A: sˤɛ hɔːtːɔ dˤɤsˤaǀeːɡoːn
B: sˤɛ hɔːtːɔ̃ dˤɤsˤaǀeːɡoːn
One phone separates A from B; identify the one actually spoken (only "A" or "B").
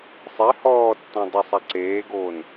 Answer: B